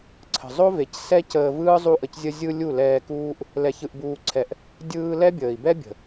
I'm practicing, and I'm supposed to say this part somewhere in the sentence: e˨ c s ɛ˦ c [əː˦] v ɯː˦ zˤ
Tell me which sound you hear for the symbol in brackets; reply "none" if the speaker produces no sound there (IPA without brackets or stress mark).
əː˧